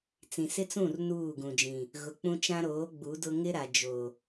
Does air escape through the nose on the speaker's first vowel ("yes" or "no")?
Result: yes